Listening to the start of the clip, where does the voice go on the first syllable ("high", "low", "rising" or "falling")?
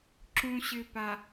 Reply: low